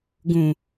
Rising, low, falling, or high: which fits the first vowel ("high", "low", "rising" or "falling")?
low